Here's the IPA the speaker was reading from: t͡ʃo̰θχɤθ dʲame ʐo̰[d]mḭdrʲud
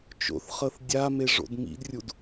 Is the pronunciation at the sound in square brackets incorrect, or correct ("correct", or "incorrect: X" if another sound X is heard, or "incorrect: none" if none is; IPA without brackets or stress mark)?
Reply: correct